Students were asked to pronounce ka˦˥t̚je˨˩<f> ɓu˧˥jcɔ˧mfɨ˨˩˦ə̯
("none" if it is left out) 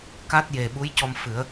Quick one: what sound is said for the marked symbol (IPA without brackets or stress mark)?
none